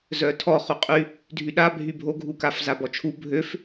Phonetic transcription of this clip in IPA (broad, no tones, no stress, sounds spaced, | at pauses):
z œ tʰ ɔ χ u qʼ y | dʱ y ɗ a bʱ y bʱ o ɡʱ u k a f z a b ɔ t͡ʃʰ u bʱ ø f